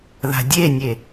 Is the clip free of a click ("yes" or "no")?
yes